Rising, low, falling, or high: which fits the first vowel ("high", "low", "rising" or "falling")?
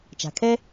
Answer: low